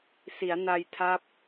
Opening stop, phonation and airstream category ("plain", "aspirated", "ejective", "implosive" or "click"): aspirated